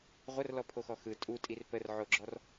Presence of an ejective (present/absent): present